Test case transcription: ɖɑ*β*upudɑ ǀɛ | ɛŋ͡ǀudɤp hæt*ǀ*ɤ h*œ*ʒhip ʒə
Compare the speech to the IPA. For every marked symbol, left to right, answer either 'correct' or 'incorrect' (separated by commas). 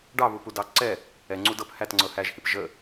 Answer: correct, incorrect, incorrect